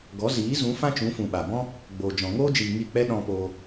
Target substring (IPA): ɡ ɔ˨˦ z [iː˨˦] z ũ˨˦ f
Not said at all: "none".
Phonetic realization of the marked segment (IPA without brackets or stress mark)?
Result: iː˨˦